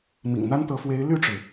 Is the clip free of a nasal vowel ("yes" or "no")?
yes